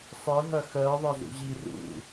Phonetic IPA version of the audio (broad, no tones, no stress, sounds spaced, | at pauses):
sˤ ə ɦ ɐ x ɜ ðˤ ɐ z ṵ ʑ i r ṵ